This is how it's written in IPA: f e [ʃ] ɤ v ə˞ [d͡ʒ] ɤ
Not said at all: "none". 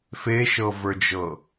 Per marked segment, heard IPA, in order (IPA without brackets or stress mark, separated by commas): ʃ, d͡ʒ